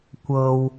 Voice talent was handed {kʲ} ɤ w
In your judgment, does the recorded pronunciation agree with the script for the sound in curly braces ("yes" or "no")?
no